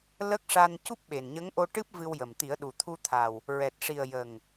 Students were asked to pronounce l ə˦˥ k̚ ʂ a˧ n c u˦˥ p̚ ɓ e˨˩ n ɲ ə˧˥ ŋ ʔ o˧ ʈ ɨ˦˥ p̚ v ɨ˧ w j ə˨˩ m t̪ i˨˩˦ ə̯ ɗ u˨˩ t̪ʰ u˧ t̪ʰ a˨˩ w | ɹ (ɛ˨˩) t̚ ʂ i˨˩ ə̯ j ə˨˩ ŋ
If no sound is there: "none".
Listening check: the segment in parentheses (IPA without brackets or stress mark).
ɛ˨˩